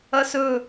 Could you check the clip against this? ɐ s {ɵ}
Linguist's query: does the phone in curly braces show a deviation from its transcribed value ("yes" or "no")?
no